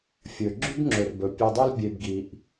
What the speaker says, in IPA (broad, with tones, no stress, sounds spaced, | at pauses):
fʲ ɵ˨ ɡ͡ǁ ʉ˦ b ŋ͡ǁ ɵ˨ r b ɵ˨ pʲ ɵ˧ dˤ o˦ l bʲ e˧ b ɡ i˧ ʔ